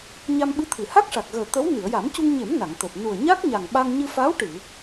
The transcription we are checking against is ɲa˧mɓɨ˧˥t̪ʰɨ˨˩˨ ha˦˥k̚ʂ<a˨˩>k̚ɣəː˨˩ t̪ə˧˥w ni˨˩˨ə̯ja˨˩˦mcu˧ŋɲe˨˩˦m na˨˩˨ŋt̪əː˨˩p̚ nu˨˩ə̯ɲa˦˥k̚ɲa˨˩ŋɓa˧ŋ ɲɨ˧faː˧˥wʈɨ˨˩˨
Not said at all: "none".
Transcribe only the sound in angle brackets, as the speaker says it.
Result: a˨˩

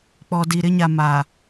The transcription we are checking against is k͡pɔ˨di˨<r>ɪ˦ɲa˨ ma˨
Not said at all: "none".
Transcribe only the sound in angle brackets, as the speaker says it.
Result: ɾ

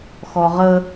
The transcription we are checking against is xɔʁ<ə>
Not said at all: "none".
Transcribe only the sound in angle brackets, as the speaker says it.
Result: ə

